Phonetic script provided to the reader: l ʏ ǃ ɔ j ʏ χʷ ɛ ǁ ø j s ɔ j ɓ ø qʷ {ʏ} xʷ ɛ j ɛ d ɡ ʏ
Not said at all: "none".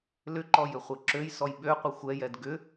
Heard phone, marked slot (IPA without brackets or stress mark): ɪ